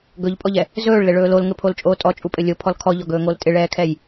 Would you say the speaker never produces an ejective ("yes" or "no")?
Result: no